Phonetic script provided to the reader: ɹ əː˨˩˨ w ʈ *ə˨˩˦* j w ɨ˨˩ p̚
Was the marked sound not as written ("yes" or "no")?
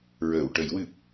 no